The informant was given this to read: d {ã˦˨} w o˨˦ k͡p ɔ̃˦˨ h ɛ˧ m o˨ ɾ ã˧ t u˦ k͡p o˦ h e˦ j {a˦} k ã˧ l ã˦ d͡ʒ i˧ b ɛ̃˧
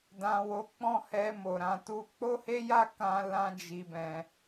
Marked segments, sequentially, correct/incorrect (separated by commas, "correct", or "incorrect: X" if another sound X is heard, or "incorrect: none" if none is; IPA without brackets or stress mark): incorrect: ã˨, correct